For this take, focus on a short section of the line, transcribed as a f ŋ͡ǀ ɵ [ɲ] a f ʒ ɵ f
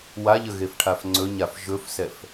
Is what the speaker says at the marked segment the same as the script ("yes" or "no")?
yes